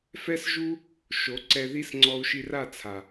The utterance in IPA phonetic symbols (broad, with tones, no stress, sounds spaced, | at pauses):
f ɛ˦ s ʒ u˦ | ʃ o˨˦ ǀ ɛ˧ ð i˦ s ŋ͡ǀ ɔ˧ u̯ ʃ i˧ r a˦˨ t͡sʰ a˨